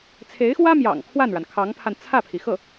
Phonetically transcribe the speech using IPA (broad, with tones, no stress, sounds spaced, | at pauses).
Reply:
t͡sʰ e˧˥ ɪ̯ x w ä˥ m j ɑ̰˨˩ ŋ kʰ w a˥˩ n ɻ a˩ n kʰ ɑ˧˥ ŋ pʰ a˧ n t͡sʰ ä˥˩ pʰ i˩ x ɤ˥˩